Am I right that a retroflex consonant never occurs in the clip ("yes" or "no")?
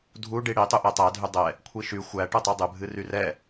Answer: no